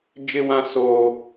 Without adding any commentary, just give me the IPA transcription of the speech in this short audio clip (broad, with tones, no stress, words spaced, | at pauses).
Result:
d͡ʒɪ˦wã˦ soː˦